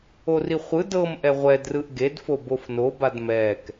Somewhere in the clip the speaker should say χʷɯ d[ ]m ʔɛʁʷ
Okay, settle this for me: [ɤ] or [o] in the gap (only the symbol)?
ɤ